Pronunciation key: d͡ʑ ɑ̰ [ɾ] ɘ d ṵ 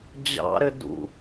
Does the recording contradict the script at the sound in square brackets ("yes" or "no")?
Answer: no